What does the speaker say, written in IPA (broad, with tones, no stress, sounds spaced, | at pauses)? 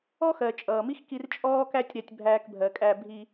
ɔ˥ x ɜ˩ t͡ʃʼ ʌː˩ m i˥ x k i˧ r t͡ʃʼ ɔː˥ k æ˥ tʲ ɾ æ˧ tʲ bʱ æː˧ k bʱ ɜ˩ kʼ æ˧ bʱ i˧